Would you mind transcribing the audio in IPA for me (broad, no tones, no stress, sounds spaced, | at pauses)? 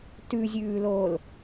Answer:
t ʉ zʲ ʉː l oː l